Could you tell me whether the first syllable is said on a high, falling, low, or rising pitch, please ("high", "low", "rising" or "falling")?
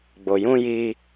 low